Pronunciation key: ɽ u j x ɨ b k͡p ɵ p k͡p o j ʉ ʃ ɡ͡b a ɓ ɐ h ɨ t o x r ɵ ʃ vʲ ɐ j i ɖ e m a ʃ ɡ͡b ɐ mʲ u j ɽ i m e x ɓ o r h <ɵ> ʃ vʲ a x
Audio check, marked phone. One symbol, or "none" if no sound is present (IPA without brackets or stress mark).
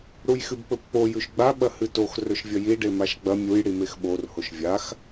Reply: o